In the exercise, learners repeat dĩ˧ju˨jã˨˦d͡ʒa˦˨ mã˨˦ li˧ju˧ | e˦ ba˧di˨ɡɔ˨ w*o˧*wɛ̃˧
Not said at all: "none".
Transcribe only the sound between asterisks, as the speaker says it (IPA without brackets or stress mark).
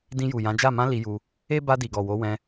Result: o˨˦